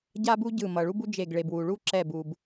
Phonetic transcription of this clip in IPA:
ɟ a˦ b u˦ ɟ ɯ˧˩ m ʌ˩ ɭ u˦ b u˦ d͡ʒ e˧˩ ɡ ɭ e˩ b w u˩ ɭ u˦ ǁ ɛ˧˩ b u˩ b

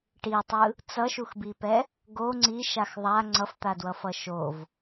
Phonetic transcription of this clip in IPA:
ʈ i tˤ ɯ | t͡s ʌ ʃ u x b i p ɛ | ɡ o ŋ͡ǀ i ʃ a x ðˤ a ŋ͡ǀ ʌ f t̪ a d w ʌ f ʌ ʃ o v

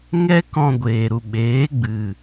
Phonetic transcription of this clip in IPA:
ŋ ɛ˦ k ɔ̃˧ ɡʷ eː˨ ɾ u˨ ɓ eː˨˦ ɡ͡b ɨ˨

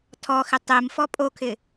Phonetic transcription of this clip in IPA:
tʰ ɔ x ɪ tˤ e m f ɔ pʼ o kʰ ɪ

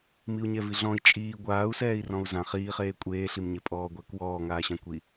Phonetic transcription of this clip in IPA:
m i u̯ ɲ ɛ v i ɮ ɔ̃ i̯ t͡ʃʼ iː ɡʷ aː u̯ s ɛː i̯ r ɔ̃ u̯ z ã χ iː χ eː kʷʼ eː ɬ i m ɲ e pʼ ɔː ɡʷ ɛ k w ɔː ŋ aː ɕ ã kʷ i

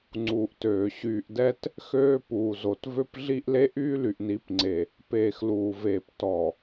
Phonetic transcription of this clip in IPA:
ŋ͡ǀ uː˨ ʔ t øː˨ ɕ yː˨ ʔ d ɛ˦ t | x øː˦ p uː˨ z o˨ t v ø˦ p ɮ i˦ ʔ l e˦ ʔ yː˦ l y˨ ʔ n i˨˦ p ŋ͡ǀ e˨ | p eː˨ x l uː˨ v eː˨ p t ɔ˨

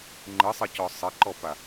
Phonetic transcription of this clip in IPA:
ŋ͡ǃ ɯ sˤ ɘ c ɔ sˤ ɘ ǃ ɔ p a

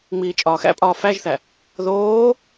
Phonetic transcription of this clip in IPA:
ŋ͡m iː t͡ʃʼ ɒː x æ̰ pʼ ɒː f æ ʒ θ æ | ð oː

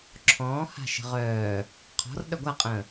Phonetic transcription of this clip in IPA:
ǁʰ ɔ̃ː h a̤ ʃ ə̤ ʁ œː | qʰ ɔ̤ r ɗ œ ɡʷ a qʼ ə̃ː

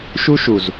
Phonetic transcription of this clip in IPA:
ʃ u˦ ʃ u˨ z

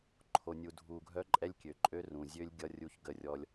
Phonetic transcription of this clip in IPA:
ǃʰ o˨ nʲ u˨ dʱ u˨ ɡʱ œ˦ ǃʼ ɛ˦ lʲ kʲ ø˨ ǃʼ ø˦ r ũ˨ zʲ ø˦ lʲ ɡʲ ʌ˦ rʲ u˦ ç ɡ ə˦˨ rʲ ɔ˦ lʲ

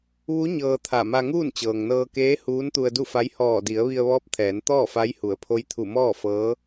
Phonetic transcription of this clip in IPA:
ʋ u˧˥ ɲ ɤː˧ t̪ʰ a˧˩ m a˧ ŋ uː˥˨ n t͡ɕ ɤː˩ ŋ n ɤː˧ k eː˧˥ h uː˧˥ n t̪ u˧ ə̯ d u˥˨ f a˧˥ j h ɔː˧˩ d i˩˧ ə̯ ʋ i˧ ə̯ ʋ ɔː˧˥ p̚ t̪ʰ ɛː˩˧ n t̪ ɔː˥˨ f a˧˥ j h u˩˧ ə̯ pʰ o˧˥ j t̪ʰ u˧˩ m ɔː˥˨ f ɤː˧˥

